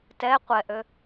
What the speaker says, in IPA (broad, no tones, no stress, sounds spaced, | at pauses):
t ɛ qʷ ɛ ʔ ø